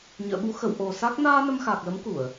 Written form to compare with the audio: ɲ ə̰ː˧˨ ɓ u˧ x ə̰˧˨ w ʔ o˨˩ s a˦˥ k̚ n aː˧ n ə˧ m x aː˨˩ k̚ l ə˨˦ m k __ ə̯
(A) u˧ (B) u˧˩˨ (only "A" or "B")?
B